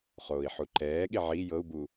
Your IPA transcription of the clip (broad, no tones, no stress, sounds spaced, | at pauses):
χ oː i̯ ħ u ǃ ɛː ɠ i ʕ i j ɤ u̯ b u